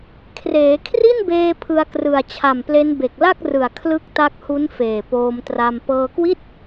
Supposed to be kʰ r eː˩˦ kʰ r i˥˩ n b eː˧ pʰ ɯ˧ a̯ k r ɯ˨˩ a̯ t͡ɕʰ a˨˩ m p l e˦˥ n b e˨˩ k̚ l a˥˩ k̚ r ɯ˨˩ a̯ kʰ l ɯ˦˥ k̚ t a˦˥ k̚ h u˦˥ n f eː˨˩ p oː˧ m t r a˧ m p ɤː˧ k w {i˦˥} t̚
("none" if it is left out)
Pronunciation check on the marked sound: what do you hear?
i˥˩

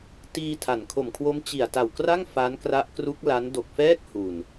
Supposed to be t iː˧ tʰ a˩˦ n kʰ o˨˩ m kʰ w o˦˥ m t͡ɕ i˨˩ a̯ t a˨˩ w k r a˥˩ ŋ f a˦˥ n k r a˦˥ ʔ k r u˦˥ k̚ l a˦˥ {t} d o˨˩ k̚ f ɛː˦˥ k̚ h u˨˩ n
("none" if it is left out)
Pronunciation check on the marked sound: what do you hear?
n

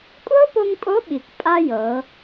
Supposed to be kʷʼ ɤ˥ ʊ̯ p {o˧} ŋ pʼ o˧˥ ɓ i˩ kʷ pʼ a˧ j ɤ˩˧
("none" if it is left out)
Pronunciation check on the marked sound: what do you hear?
o˧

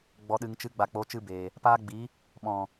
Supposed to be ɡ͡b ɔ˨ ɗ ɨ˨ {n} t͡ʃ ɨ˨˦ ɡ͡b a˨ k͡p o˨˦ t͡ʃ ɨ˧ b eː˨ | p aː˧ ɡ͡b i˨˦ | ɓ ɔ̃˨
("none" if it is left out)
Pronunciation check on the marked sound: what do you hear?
ŋ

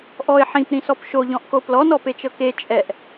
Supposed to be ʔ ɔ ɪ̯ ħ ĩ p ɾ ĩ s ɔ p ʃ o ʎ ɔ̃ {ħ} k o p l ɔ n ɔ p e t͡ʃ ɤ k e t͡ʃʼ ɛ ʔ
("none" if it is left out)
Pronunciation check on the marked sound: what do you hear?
ʔ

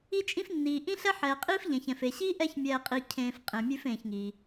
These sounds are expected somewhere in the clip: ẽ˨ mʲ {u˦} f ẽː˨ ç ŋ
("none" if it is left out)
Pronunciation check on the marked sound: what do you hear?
ʉ˦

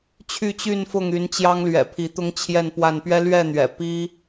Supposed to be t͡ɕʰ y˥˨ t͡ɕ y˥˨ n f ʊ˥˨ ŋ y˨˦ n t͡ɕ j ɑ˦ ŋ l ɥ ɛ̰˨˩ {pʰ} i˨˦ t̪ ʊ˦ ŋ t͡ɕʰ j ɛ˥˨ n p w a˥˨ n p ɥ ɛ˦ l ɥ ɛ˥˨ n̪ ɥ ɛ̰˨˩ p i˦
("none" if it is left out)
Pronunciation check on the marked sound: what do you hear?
pʰ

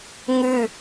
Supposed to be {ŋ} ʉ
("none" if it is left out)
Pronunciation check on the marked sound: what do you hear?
ŋ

